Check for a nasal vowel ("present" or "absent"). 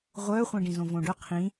present